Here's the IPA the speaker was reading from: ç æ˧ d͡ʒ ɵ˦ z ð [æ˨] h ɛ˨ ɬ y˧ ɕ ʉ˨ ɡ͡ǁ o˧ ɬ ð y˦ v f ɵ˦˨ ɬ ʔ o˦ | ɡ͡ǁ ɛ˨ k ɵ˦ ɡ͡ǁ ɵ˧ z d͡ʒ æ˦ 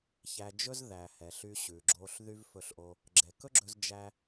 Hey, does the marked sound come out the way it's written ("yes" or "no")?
yes